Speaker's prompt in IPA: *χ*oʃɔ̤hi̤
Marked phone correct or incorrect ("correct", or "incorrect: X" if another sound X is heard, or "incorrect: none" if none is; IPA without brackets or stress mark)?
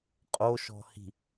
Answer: incorrect: qʼ